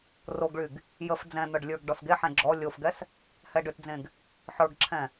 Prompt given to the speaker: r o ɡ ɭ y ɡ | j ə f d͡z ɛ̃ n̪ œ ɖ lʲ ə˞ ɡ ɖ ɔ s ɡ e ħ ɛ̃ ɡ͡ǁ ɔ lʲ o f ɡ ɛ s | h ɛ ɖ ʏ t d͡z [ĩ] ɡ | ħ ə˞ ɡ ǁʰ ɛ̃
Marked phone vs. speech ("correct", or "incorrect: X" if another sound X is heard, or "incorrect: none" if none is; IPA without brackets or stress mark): incorrect: ẽ